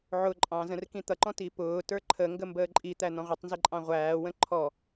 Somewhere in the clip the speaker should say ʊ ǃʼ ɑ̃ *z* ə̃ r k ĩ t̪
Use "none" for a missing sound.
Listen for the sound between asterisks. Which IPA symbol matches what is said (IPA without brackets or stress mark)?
z